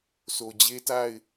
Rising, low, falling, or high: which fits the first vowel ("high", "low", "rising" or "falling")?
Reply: low